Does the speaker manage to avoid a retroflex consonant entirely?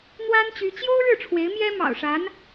no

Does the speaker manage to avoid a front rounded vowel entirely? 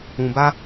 yes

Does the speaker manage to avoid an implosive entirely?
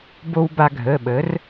no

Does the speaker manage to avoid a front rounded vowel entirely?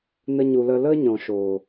yes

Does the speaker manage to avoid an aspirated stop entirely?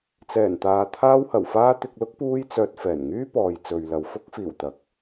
no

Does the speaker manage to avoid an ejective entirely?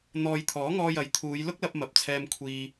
yes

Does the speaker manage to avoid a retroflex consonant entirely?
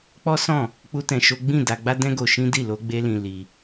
yes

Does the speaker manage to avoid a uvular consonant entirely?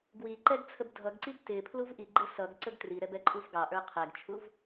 no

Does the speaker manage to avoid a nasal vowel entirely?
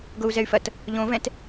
no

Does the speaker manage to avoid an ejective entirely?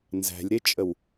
no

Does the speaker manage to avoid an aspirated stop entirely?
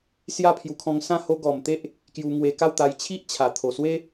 no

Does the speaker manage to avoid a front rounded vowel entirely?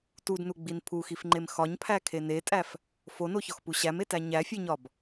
yes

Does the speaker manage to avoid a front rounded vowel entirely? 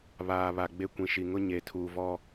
yes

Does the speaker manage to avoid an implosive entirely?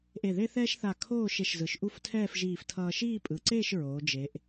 yes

